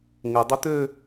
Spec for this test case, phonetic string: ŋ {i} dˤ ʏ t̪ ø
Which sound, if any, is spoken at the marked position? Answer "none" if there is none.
ɪ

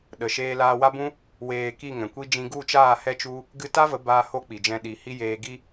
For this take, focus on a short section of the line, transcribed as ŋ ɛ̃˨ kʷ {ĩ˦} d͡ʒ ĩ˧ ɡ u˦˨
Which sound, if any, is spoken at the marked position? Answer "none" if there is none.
i˦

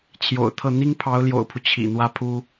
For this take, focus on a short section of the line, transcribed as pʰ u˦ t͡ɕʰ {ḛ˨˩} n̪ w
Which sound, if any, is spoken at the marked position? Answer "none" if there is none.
ḭ˨˩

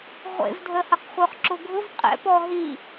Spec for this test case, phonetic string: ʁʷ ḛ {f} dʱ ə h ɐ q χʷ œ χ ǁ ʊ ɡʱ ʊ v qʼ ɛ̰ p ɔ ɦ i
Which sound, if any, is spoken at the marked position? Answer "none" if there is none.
v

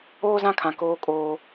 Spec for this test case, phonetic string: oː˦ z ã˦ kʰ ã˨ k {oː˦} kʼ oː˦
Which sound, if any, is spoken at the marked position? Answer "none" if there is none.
oː˦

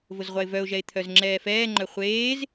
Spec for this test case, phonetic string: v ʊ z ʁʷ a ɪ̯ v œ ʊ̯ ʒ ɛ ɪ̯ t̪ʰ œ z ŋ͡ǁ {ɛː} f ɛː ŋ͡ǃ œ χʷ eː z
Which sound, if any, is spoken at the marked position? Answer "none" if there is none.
ɛː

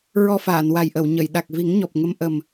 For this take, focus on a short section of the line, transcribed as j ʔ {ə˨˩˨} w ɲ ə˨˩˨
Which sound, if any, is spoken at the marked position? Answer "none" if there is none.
ə˨˩˨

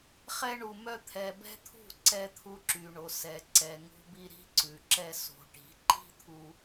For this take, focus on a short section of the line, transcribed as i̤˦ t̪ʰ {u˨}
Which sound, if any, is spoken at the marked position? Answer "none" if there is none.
u˧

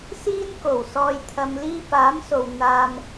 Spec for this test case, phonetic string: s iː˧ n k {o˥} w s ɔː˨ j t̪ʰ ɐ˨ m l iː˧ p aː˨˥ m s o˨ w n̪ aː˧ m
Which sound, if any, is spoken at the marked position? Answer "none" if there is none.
o˨˩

